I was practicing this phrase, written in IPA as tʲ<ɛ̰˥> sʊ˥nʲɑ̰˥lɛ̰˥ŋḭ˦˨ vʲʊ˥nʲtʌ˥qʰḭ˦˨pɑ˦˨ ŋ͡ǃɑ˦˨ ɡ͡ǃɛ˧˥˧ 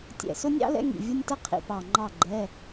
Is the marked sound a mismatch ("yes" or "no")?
yes